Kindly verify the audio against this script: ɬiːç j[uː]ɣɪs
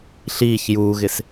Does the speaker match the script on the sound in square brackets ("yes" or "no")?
yes